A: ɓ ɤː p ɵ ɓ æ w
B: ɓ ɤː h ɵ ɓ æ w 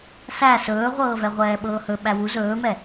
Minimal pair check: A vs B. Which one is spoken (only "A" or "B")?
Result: B